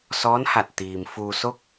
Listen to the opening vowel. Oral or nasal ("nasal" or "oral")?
oral